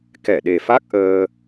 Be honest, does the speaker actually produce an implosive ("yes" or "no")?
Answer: yes